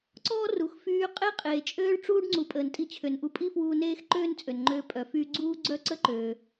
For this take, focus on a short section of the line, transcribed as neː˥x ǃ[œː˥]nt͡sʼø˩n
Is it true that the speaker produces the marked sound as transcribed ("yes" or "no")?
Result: no